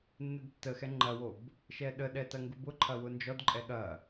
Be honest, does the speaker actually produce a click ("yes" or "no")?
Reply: yes